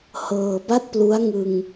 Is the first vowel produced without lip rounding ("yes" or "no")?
yes